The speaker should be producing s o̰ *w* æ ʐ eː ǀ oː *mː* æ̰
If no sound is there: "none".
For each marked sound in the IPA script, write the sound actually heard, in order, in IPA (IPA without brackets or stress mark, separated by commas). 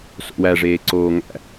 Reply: w, ŋ